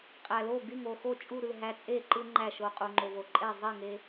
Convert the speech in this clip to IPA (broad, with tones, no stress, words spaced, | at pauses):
qʼæ˨lo˥˨ ɡy˥˨ŋo˥˨xo˥˨t͡ʃʼu˥˨ ɾɯ˥˨ɦæ˦t͡sʼe˥˨ǃɯ˦ ŋ͡ǃæ˥˨ʃo˦ qʼu˨ŋ͡ǃo˨vo˨ǃʼe˥˨ zˤi˥˨ŋe˦